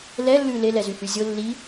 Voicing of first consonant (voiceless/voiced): voiced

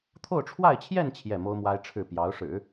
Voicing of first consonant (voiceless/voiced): voiceless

